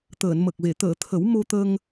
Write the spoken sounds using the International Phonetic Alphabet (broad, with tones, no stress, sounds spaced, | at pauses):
t̪ əː˨˩˨ n m ə˨˩ k̚ v e˨˩˨ t̪ əː˨˩˨ t̪ʰ ə˨˩˦ w m o˧ t̪ ə˧ ŋ